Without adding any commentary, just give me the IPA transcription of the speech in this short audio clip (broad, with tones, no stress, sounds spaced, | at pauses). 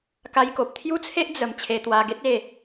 k a˧ j k o˨ p̚ t̪ʰ j u˦ t͡sʰ e˦ ʔ d͡z ə˧ m t͡ɕʰ e˧ t̪ w a˧ ɡ e˦ t̚ e˥˧